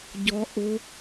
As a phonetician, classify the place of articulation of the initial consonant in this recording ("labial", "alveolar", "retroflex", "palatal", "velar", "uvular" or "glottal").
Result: palatal